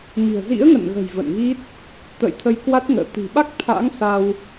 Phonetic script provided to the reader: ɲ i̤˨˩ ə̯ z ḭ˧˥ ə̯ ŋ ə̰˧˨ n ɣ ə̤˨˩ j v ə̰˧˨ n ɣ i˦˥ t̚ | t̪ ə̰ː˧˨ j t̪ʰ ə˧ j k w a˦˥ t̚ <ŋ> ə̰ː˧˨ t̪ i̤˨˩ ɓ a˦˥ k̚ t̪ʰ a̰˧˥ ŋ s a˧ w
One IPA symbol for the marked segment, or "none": ŋ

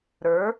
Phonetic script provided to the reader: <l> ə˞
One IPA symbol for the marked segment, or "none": ɾ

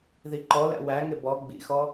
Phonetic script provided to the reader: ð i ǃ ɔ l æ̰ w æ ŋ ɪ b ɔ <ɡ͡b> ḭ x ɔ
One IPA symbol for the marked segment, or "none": ɡ͡b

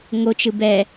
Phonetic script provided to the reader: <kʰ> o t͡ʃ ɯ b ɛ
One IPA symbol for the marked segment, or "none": ŋ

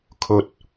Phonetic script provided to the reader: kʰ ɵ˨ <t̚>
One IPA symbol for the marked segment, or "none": t̚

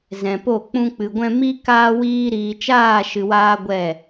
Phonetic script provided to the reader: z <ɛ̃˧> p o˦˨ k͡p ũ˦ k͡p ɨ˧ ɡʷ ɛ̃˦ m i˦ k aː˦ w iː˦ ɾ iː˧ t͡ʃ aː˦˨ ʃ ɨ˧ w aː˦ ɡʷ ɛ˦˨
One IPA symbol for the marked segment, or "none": ɛ̃˧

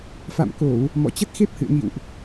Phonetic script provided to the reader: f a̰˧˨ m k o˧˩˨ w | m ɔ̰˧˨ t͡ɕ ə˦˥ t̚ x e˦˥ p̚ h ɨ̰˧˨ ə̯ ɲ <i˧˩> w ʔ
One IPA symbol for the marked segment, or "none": ḭ˧˨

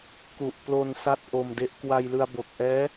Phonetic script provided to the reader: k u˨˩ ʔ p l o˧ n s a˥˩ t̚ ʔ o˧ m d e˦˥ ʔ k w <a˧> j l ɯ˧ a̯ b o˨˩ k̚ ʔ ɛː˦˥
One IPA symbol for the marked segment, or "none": a˧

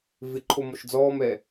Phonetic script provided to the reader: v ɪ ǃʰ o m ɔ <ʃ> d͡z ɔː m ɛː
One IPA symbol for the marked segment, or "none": ʃ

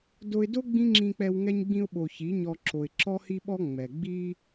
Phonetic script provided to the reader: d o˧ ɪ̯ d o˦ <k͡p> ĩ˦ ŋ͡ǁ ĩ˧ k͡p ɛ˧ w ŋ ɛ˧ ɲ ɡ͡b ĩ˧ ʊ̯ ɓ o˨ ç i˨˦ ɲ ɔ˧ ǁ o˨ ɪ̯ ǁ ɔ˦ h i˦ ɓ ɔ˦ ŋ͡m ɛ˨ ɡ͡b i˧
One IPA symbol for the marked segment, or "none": ɡ͡b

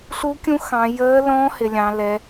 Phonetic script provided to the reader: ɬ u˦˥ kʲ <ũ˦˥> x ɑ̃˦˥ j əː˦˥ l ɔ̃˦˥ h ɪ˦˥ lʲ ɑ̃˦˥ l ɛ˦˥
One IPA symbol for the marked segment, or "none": ũ˦˥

